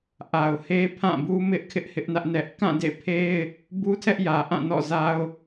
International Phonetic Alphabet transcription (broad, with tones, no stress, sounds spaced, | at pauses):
ʔ a˨ ʊ̯ h e˦ pʰ ã˦˨ b u˦ m ɪ˦ ʔ kʰ ɪ˦ ʔ h ɪ˦ ʔ n ä˦ ʔ n ɛ˦ ʔ k ã˦˨ d ḛ˦˨ pʰ e˦ ɪ̯ | b u˦ tʰ ɛ˦ ʔ j ä˨ ʔ ã˦˨ n ɔ̰˦˨ z a˦ ʊ̯